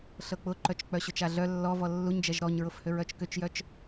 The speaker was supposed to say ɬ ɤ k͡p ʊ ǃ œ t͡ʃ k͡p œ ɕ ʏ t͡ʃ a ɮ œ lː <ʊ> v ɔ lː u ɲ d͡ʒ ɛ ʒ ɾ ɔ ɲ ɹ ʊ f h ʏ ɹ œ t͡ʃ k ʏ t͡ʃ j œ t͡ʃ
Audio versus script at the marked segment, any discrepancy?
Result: yes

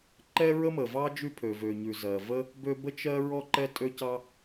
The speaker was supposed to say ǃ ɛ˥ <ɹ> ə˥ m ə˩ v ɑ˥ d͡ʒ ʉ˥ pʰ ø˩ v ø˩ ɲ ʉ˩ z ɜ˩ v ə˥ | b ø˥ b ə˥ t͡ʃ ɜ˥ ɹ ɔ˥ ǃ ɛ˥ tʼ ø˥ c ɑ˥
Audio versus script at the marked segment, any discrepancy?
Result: no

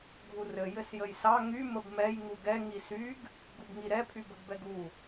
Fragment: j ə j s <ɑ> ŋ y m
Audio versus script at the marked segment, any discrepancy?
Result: no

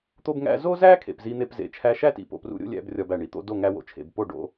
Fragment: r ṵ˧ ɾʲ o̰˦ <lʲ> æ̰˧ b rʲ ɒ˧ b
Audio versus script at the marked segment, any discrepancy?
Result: no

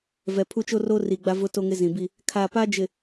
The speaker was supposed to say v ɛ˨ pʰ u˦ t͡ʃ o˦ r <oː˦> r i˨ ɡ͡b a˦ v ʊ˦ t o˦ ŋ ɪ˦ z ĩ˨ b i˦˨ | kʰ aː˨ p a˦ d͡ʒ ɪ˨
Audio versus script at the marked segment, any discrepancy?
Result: no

